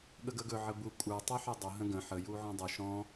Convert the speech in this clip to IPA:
ɠ ə ɡ ə ɡ ɵ ʕ ə b u kʷʼ ə˞ tˤ ə˞ ħ ɵ dˤ ʌ ɦ ə̃ ɡ ə̃ ħ ə j u ʕ ɔ̃ dˤ ɨ ʃ ɔ̃

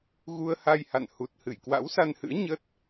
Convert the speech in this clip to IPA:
ɣ u˧ ə̯ h a˧ j h a̰˧˨ n h u˨˩ t̚ h ɨ˧˩ j k w a̰˧˥ w s a˧ n h ɨ̰˧˥ ə̯ ɲ ə˦˥ t̚

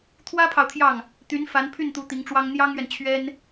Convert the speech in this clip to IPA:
t̪ʰ w ä˥ pʰ ɑ˨ ʊ̯ t̪ʰ j ɑ˥˩ ŋ | t̪ y˧˥ n f a˧˥ n pʰ y˥˩ n t̪ u˧˥ t̪ i˧˥ ŋ ʈ͡ʂ w ɑ˥ ŋ n̪ j ɑ˥ ŋ ɥ ɛ˨ n t͡ɕʰ ɥ ɛ˥ n

